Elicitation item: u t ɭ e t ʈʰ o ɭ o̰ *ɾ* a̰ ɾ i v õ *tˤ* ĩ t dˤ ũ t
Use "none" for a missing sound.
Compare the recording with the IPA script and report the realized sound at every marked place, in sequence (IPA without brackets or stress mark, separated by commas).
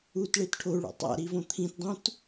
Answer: tˤ, t̪ʰ